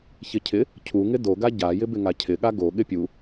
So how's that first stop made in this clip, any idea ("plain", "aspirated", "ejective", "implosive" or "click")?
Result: aspirated